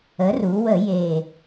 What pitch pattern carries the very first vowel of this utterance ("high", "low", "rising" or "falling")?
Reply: rising